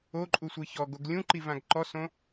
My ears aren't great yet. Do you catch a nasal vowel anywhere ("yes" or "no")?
yes